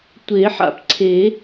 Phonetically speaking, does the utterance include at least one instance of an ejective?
no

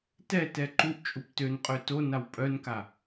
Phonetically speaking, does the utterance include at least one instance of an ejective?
yes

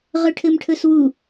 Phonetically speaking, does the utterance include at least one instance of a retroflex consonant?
yes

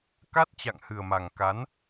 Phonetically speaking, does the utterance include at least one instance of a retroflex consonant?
no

